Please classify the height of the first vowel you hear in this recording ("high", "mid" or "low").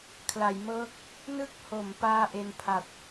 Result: low